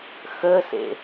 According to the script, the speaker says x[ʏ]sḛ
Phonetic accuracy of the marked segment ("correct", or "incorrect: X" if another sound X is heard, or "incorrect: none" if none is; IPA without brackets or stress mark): incorrect: ə